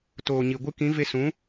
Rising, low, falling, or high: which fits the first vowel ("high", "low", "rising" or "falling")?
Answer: low